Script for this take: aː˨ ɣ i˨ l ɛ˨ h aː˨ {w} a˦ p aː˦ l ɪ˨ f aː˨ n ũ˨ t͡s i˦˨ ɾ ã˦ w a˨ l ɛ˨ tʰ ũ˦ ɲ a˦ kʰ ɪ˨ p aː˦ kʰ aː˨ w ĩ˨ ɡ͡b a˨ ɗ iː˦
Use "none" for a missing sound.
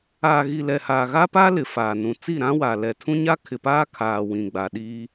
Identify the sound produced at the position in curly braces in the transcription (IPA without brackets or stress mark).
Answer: ɣ